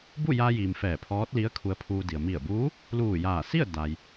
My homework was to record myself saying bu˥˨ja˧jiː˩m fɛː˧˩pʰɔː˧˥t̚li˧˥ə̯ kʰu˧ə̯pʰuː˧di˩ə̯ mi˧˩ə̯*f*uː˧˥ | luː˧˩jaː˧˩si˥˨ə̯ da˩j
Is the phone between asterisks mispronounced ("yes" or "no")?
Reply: yes